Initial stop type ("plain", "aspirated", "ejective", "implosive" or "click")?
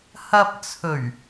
plain